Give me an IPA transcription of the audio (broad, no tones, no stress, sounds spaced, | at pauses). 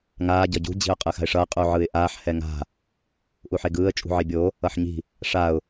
ŋ aː ɟ ʌ ɟ ṳ d͡ʑ i̤ ʊ̯ qʼ ɯ x a̤ ɪ̯ ʂ ʌː qʼ u ʕ ɯ ɪ̯ ʔ aː ħ h ɛ ŋ a̤ | ʔ u ħ e ɡ ɯː ə̯ t͡ʃʼ ṳ ʕ i bʲ o | ʌ ħ ɲ i̤ | ʂ a ʊ̯